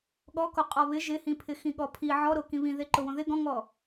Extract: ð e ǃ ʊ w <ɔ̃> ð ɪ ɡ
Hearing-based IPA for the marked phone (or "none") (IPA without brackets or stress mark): õ